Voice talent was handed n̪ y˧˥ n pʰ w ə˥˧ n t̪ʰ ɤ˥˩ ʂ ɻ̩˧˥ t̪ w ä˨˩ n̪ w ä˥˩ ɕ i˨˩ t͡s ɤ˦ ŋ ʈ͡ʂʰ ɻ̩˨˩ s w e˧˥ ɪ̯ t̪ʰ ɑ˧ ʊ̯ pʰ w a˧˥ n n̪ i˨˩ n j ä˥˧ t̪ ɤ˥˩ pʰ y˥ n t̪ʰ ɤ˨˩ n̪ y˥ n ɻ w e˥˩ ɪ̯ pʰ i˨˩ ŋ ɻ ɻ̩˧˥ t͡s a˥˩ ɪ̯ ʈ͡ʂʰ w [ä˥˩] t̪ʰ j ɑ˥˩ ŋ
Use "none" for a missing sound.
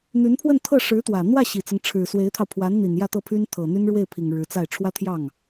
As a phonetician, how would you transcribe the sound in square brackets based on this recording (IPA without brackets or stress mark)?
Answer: ä˥